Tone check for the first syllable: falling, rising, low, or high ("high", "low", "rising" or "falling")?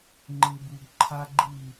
low